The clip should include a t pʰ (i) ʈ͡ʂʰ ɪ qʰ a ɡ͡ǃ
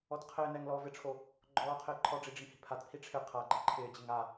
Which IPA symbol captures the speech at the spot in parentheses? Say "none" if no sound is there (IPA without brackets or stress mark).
i